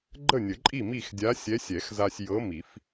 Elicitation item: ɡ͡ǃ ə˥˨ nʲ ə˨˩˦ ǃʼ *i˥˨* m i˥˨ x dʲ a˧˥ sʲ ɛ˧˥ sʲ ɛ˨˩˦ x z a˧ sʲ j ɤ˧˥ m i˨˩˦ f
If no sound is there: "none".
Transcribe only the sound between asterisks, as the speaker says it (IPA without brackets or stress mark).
i˥˨